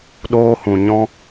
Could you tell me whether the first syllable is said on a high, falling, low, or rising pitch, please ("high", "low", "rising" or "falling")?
high